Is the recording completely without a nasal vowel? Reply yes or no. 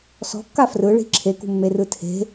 yes